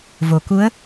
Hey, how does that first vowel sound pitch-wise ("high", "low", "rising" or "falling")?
low